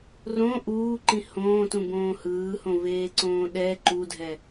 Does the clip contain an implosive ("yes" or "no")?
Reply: yes